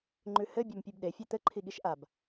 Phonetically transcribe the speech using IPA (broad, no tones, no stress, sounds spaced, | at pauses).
ŋ͡ǃ ʉ h ɘ bʲ a m pʲ ʉ b ɗ e fʲ ʉ t̪ ɘ ǃʰ i ɠ i ʃ ʔ a b